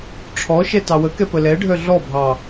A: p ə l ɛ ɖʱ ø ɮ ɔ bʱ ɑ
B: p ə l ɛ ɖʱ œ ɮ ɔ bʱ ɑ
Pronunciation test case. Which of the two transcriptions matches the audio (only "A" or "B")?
B